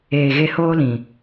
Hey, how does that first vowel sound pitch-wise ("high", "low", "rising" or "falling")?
low